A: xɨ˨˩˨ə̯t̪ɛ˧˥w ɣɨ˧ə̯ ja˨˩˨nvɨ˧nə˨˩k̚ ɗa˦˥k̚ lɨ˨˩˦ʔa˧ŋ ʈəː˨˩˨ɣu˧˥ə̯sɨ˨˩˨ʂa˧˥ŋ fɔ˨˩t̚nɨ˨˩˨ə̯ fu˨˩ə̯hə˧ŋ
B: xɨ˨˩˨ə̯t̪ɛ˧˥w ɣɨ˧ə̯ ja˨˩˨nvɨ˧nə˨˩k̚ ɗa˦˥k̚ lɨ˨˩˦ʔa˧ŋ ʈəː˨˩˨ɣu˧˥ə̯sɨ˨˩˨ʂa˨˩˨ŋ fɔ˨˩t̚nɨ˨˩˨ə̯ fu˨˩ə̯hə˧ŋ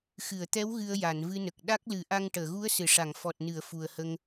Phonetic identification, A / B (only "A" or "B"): B